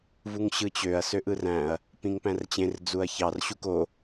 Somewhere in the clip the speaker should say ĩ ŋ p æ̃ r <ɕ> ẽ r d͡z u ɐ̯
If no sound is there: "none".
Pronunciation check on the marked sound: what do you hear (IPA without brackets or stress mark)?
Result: t͡ɕ